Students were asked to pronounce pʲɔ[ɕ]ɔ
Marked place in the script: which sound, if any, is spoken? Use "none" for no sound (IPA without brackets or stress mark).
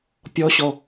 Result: ɕ